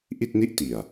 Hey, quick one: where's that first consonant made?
throat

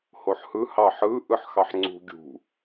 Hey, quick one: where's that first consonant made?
throat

